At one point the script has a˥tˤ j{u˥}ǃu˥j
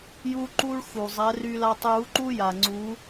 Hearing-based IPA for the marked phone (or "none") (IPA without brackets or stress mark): u˧˥